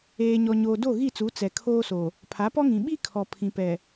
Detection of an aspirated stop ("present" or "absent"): present